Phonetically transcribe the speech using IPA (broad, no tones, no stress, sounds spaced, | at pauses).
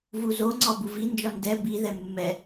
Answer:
v u z o ŋ͡ǀ ɒ b u v i n d͡ʒ ɒ n d ɛ b i ð ɛ mː ɛ